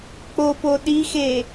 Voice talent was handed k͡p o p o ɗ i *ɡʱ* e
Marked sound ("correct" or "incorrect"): incorrect